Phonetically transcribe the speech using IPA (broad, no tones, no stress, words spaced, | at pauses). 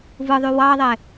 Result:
vɯðˤy wɑðˤe